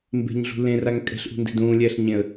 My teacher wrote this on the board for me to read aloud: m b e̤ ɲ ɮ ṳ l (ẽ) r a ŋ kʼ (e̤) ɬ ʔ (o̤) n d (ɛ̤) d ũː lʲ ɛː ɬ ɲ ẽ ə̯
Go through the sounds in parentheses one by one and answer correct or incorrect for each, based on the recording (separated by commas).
correct, incorrect, incorrect, incorrect